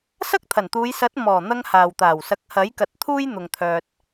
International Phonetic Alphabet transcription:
s ɐ˥ k̚ t̪ʰ ɐ˨˩ n t̪ uː˨˧ j s ɐ˨˥ t̚ m ɔː˨˩ n̪ ɐ˧ ŋ h aː˨ w t̪ aː˨˩ w s ɐ˨˥ k̚ h ɐ˨˥ j k ɐ˨ t̚ t̪ʰ uː˥ j n̪ ʊ˨ ŋ t̪ʰ œː˨ t̚

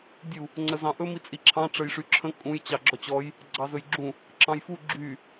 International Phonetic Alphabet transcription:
dʲ u | ŋ͡ǀ ə z ɑ̃ ʔ ɵ m i t͡sʼ i ǁʰ ɑ̃ ʈ͡ʂ ə j ʂ y ǁʰ ə̃ kʼ ũ j t͡ɕ ɑ ɡ͡ǁ ɔ t͡ɕ ɔ j | ɡ͡ǀ ɑ z ɵ j ɡ͡ǁ ũ | ǁ ɑ̃ j f u ɡ͡ǁ y

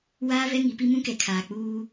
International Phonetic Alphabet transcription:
w aː˦ v ɛ˦ ŋ i˨˦ p i˦ m ũ˦ k ɛ˨ kʰ aː˨ k͡p uː˦

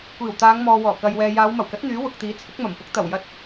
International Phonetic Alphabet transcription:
kʷ iː˨˩ w t̪ aː˨˧ ŋ m ɔː˨ w ɔː˨˩ k ɐ˨ j w ɛː˨ j aː˨˧ w m ɐ˨˩ w k ɐ˨˥ t̚ n̪ yː˨˥ w ʊ˨ k̚ t̪ iː˨˥ t͡sʰ ɪ˨˥ k̚ m ɐ˨˩ m p ʊ˨˥ k̚ t̪ ɐ˨˩ w j ɐ˧ t̚

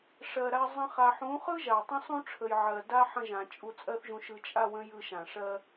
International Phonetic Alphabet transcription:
ʂ ɜ˨ ɾ a˧ zˤ ə̃˦ χ a˧ ħ ũ˨˦ χ ɯ˦ ʒ a˨ tˤ ə̃˦ sˤ ũ˦ ʈ͡ʂʰ ə˨ j ʕ ɜ˨ d a˦ ħ ə̃˧ ʒ ã˨ t͡ʃʼ u˧ t͡sʼ ɜ˦ θ ʒ ũ˧ ʃ ɯ˧ t͡ʃʼ a˦˨ w ə̃˦ j ɯ˧ ʃ ã˨ ʂ ɜ˦

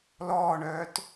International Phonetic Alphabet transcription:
l ɔː ɳ œː t

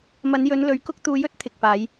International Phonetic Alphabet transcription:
m ɐ˨˧ n j ɵ˨˧ n l ɵ˨˥ ɥ k ʊ˥ k̚ t̪ uː˧ j ɵ˥ t̚ t̪ʰ ɪ˨ k̚ p aː˨˧ j

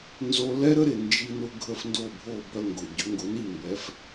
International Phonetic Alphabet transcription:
n z o˧ l ɛ˥ ɾ ə˥ ɾ ɪ˩ n d͡ʒ i˧ n ʊ˧ ɡʱ ə˥˩ f n d o˥˩ bʱ o˥˩ b œ˧ ŋ ɡ ʊ˩ ɟ ʏ˩˥ ŋ ɡ ʊ˩˥ n i˥˩ m b ɛ˩˥ f

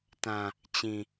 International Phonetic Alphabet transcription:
t ã˨ | t͡ɕ ĩ˨

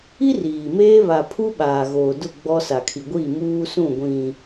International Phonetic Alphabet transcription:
i˦ r iː˨ m eː˦ β a˨ pʰ u˦ ɓ aː˨ ɣ oː˨ d ʊ˦˨ ɡ͡b ɔ˦ s a˨ kʰ i˨ ɡʷ iː˦˨ m uː˦ s ũ˦˨ ɡʷ ĩ˨

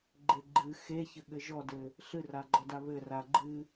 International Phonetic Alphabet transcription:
ɡ͡ǃ e ɡ͡ǃ ɨ x e ç ɘ ɠ ɘ ʒ ɔ d ɘ | ɬ ɨ r a ɡ͡ǃ ɔ d a β ɘ r a ɡ͡ǃ ɨ

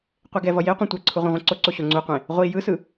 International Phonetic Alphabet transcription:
qʷ e ɡ ɛ v ʌ j e qʷ ẽ tʷ ɛ ǀʰ u ʁʷ ɛ̃ ʁʷ ɛ̃ ǀ o ǀ o ɕ o ŋ͡ǀ u qʷ ẽ | ʁʷ i j ɯ s ɯ

